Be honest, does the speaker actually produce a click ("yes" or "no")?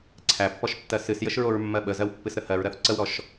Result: yes